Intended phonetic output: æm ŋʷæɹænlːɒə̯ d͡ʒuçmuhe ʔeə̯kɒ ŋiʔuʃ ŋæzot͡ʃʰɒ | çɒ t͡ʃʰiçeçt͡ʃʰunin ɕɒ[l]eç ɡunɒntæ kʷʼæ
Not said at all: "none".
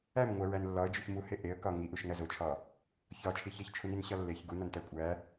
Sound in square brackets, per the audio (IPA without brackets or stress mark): lː